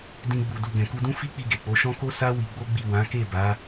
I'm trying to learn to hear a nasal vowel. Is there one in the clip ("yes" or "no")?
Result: yes